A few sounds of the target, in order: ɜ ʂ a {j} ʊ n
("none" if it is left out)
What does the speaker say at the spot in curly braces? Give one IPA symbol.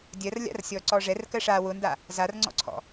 w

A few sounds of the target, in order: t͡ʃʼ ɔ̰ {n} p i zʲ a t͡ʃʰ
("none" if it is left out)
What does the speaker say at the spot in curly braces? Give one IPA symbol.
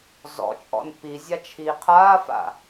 n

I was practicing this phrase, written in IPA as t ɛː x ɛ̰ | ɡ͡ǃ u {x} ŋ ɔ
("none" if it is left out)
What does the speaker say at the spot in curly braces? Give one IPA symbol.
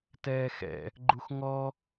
x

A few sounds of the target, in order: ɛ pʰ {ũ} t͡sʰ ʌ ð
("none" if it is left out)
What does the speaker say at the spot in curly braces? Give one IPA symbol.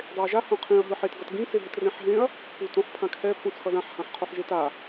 ũ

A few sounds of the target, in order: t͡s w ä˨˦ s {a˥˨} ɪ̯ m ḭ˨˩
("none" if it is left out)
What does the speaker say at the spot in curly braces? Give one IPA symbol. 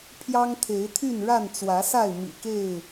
a˥˨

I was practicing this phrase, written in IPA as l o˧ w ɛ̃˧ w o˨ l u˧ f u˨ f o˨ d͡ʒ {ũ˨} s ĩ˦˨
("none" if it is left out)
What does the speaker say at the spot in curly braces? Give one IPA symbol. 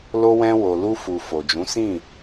ũ˨˦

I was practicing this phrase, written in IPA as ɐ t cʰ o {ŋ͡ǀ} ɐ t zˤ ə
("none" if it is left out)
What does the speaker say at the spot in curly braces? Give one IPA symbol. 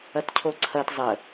ǀʰ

